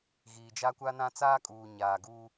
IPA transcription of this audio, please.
ɣiː˨d͡ʒa˦kʷa˦nã˦ t͡saː˦kʼuː˨ ɲaː˨ɡuː˦

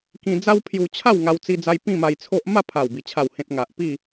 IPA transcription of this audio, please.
kĩ˧d͡za˦wpʰju˧t͡ɕʰa˥˧w ŋa˧wt͡si˧d͡za˧j pĩ˥˧ma˧jt͡sʰo˦ʔ ma˥˧ pʰa˨˩wbi˨˩ t͡ɕʰa˨˩whẽ˨t̚ ŋa˨ʔpi˥˧

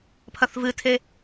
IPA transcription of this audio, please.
pʰɐθvɨtʰe

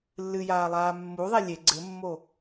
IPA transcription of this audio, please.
lːɨjaːlˠaː mːu ðˤelʲe ɡ͡ǀɘmːo

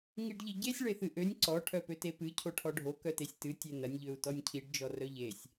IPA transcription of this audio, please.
ŋiɖʎiɟesʲ ɭeθɨʔønʲ ǀɔ ʈʰœpøtepɨ cʰoʈʰɔɖʱo kœtesʲtɨ tʲenɐnʲ ʎøu̯tɔnʲcʰiɖ d͡ʒɔrœʎesʲ

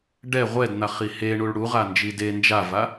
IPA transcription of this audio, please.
ɖɛ ʁʷɛdn̪aχi heɳuɭ ɽuʁand͡ʒi de nd͡ʒava

